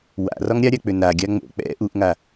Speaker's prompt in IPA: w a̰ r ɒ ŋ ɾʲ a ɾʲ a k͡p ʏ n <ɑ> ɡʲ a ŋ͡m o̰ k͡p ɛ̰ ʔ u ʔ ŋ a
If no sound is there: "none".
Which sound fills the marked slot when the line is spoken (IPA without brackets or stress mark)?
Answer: a